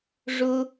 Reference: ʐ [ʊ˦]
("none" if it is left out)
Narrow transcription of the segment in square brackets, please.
ʊ˦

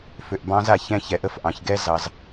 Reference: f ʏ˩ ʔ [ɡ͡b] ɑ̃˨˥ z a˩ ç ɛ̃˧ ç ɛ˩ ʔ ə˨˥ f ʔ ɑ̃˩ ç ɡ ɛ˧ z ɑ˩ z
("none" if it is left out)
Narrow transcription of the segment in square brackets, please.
b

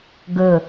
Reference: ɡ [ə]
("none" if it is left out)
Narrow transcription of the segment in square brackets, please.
ə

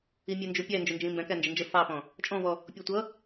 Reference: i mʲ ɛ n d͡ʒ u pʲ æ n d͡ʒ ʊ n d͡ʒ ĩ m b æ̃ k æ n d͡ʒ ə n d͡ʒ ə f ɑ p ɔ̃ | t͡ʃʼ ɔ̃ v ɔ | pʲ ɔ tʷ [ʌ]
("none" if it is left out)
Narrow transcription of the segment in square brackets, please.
ʌ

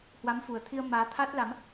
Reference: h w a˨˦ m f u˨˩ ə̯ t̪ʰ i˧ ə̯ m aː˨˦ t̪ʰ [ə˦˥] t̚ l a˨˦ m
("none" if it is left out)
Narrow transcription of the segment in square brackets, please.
a˦˥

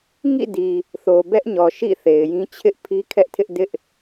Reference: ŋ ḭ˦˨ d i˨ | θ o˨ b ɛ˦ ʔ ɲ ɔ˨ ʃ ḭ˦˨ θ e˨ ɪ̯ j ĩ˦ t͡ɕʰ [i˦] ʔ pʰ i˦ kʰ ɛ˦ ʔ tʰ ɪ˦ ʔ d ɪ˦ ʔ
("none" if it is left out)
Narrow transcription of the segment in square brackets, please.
ɪ˦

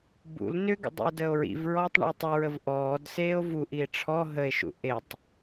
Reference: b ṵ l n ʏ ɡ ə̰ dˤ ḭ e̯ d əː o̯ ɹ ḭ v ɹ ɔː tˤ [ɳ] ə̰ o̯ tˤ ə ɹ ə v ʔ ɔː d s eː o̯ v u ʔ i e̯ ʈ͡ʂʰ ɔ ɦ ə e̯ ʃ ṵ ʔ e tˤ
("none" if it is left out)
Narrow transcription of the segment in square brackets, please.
ɳ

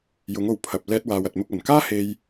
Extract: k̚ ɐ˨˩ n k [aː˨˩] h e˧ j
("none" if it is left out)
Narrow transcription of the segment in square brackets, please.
aː˥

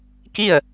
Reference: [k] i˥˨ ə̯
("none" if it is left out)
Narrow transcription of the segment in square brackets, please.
k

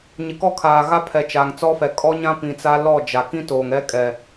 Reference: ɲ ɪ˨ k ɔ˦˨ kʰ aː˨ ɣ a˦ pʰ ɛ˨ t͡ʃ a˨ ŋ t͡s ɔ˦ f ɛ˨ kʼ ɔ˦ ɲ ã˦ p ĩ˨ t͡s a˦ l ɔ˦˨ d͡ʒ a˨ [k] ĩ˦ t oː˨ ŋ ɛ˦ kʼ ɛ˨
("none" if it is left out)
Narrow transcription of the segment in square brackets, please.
k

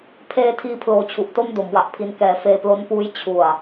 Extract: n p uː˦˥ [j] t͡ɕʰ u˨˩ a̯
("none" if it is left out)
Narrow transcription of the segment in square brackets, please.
j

